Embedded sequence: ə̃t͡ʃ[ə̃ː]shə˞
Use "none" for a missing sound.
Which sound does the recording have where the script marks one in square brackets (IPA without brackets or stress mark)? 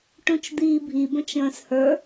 ə̃ː